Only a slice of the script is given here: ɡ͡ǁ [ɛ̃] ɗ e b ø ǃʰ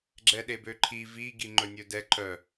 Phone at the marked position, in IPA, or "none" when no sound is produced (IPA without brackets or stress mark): ɛ